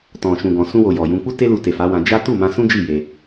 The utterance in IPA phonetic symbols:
tɔ̃˨ʃũ˨ɡɔ̃˨ sũ˧wo˨ jɔ˨jũ˧ k͡pu˦te˦lu˧te˨ fa˨˦wã˧ d͡ʒa˦ tu˦˨mã˧sũ˦ d͡ʒi˦˨ je˧

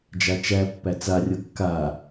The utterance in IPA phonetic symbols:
d͡ʒat͡ʃæpːæ t͡sarʲɤ kːa

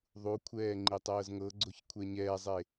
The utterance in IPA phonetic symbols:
ðˤukʷʰɛː ŋ͡ǃitˤɤːzŋɤɡ͡ǀoç kʷʰɛɲɛːzˤe

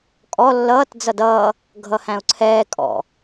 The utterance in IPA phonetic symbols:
kʼɔ lːʌːt d͡zʌdʌː | ɡʱʌhæ̃ʊ̯ǀʰɛː kʼɔ̰

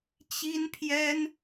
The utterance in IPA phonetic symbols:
t͡ɕi˥npʰjɛ˥n

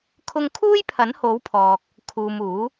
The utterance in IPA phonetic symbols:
kʰʊ˧ŋkʰuː˥jpʰɐ˨˥n ho˨˥wpʰɔː˨k̚ | kʰuː˨muː˨˥

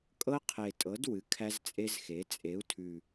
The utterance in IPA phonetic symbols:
kʼɤ˦qʰe˨˩tʼɤ˩˥d wɨ˩˥kʰæ˦zt͡sʼe˦zxe˩˥ t͡sʼe˩˥u̯tʰʉ˨˩

